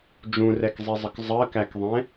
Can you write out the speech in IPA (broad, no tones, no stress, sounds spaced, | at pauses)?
d͡ʒ ũ r ɛ k zˤ i zˤ ə k zˤ ɜ k æ k ðˤ ɛ̃